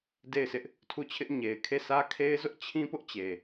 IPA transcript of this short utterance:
de˦˨ɪ̯sɪ˦ʔ | tʰu˦˨t͡ɕʰɪ˦ʔ ɲe˨ɪ̯kʰe˦˨ sʰä˦kʰe˦ɪ̯zʊ˦ʔt͡ɕʰĩ˦ pʊ˦ʔt͡ɕe˨

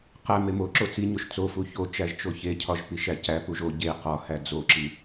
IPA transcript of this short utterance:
qæ memoǁo t͡siɲoʃ t͡sofu çot͡ʃæʒ t͡ʃoçecʰɒʒ piʃæcæpuʒ o ɟe qɒhæ d͡zoǁi

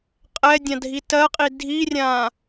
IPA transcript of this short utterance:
qʼɛdʲãdʱi tɜqʼi dʱirʲã

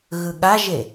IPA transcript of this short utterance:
ɣɯɠaʒe

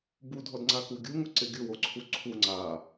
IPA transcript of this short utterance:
budʱɔdŋ͡ǀaku ɡʲuŋʊǀɪ ɡʲʊwoǀʰu ǀʰu ŋ͡ǀa

